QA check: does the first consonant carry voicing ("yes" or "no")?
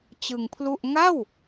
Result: no